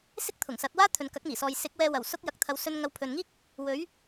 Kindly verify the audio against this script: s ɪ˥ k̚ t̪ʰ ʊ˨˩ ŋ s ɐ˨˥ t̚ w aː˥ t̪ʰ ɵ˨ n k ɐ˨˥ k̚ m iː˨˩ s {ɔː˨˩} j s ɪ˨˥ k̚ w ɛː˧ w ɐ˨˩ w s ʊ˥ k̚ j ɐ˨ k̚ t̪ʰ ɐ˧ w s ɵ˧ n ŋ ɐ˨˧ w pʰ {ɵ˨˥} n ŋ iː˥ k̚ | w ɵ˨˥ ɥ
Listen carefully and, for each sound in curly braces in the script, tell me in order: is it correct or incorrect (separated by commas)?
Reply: incorrect, incorrect